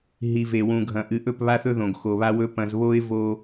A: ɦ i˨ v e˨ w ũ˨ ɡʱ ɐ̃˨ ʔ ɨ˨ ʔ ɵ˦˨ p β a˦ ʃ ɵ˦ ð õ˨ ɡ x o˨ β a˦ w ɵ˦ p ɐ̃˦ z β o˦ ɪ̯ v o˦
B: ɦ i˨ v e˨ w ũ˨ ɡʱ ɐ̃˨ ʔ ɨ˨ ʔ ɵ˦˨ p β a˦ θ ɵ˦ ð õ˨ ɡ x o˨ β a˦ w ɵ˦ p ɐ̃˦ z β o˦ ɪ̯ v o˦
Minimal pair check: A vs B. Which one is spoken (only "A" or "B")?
B